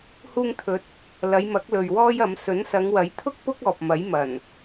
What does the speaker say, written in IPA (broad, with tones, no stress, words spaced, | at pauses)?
huː˧ŋt̪ʰɵ˨˥t̚ | lɐ˨˧jmɐ˨˥k̚ lɵ˨ɥwɔː˥jɐ˨˥m sɵ˨˥nsɐ˨˧ŋwɐ˨˥jt̪ʰʊ˥k̚ pʊ˥k̚ɔː˨p̚ mɐ˨˥jmɐ˨˩n